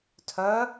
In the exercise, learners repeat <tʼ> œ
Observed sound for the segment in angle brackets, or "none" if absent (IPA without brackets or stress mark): tʰ